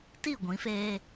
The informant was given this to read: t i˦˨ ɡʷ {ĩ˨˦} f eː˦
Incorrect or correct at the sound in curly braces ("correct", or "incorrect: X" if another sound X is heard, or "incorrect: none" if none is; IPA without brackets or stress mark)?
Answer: correct